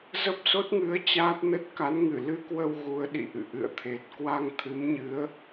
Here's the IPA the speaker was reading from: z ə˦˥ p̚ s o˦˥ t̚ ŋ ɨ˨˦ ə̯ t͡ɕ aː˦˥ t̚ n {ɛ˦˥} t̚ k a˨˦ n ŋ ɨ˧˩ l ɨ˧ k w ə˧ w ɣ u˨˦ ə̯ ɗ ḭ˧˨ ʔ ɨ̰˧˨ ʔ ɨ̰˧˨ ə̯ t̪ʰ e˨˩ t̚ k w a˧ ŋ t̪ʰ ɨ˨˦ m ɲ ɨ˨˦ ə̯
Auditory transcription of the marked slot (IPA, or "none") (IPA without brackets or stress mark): ə˦˥